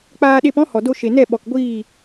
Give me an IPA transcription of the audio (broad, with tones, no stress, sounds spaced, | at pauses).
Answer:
k͡p aː˧ ɗ e˧ p ɔ̃˦ h ɔ˨ d o˧ ʃ e˨ n ɛ˦˨ ɓ ɔ˨ k ɡʷ iː˦˨